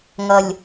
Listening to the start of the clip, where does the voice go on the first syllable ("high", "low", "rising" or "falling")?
low